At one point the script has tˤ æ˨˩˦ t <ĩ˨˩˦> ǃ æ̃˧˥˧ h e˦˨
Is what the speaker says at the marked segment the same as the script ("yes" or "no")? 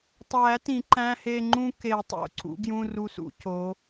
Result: yes